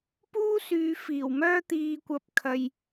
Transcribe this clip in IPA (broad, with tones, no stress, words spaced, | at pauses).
puː˥syː˨˧ fiː˨˩wmœː˥ t̪iː˨kʷɐ˨p̚kʰɐ˨j